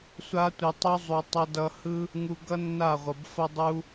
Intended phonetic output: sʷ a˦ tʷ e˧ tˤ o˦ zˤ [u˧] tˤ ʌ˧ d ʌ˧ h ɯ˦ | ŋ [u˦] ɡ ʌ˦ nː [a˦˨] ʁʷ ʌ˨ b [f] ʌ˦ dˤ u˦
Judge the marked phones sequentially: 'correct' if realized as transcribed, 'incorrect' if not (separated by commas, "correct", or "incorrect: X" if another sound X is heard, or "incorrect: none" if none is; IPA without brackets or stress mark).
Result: incorrect: u˨, incorrect: u˧, correct, correct